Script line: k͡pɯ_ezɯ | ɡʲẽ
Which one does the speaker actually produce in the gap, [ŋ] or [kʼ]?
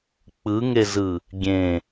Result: ŋ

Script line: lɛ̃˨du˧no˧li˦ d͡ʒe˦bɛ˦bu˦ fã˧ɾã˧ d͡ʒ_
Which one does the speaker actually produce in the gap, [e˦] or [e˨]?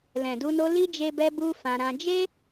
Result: e˦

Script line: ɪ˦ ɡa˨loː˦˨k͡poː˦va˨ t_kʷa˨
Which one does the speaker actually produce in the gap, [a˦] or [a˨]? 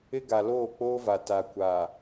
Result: a˨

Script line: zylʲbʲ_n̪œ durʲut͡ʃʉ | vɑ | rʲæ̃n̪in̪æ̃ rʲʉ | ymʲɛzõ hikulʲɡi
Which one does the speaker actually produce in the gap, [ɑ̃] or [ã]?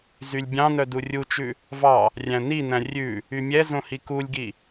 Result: ɑ̃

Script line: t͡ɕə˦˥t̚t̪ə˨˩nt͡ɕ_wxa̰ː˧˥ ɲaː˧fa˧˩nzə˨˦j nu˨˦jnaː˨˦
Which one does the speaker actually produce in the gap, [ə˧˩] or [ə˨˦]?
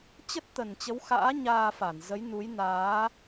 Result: ə˨˦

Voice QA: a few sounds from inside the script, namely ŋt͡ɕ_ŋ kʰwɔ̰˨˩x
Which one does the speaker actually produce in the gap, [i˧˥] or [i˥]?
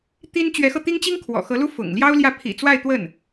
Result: i˥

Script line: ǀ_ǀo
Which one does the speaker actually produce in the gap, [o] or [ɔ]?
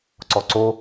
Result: ɔ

